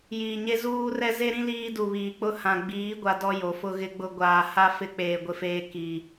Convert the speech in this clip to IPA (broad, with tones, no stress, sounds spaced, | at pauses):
j iː˨ ɲ e˦ z uː˦ r ɛ˦ z e˦ ɾ ĩ˦ l iː˦ d u˨ β iː˨ k͡p ʊ˦ h ã˨ ɡ͡b iː˨˦ ɡʷ a˨ d ɔ˦ j o˨ f ʊ˦ ɣ ɪ˨ ɡ͡b ʊ˨ ɡʷ aː˨ h a˦ f ɪ˦ k͡p eː˨ ɡʷ ɪ˨ f eː˦ k iː˨